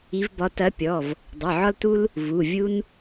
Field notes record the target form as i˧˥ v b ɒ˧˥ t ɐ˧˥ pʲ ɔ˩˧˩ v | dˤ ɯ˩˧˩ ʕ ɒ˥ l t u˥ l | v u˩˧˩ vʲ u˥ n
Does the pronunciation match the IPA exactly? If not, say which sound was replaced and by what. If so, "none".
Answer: none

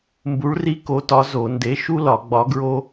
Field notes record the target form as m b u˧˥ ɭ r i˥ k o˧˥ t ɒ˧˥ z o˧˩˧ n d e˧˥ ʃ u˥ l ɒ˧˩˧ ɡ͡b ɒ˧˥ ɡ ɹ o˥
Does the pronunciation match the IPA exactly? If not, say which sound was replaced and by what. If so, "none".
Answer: none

